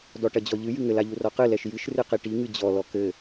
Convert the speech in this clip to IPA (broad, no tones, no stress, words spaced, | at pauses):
dɔʈɐd͡ʑɔʎɨ jɨŋɘl aʎurɔqɨ lɛʃjɨʃ rɨqiʈi ŋɨd͡ʑɔ lɔkɘ